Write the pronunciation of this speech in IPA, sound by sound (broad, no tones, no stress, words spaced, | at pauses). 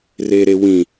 reɾewĩ